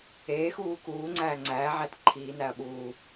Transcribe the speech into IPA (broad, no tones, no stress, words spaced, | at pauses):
eːxuː kuː ŋ͡ǀæːŋ͡ǀæːʕæt ǃʰiːnæɐ̯ ɓuː